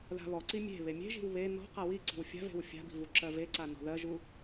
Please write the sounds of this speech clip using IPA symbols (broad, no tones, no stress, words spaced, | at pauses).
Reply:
ða̤βɔǀi mʲe̤ βemʲe̤ʒi̤w βe nɔ̤ qawiǀi̤w fʲa̤ve̤w fʲa̤bi̤ vuǁɜveǀa nɔ̤ðɜʒu